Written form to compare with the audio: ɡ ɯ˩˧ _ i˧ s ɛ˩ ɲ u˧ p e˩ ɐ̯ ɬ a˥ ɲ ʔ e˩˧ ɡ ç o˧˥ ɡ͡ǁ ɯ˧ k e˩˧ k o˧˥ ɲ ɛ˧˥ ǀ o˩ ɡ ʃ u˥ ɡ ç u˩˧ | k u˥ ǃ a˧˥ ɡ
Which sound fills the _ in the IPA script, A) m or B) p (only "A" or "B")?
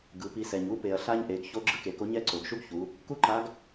B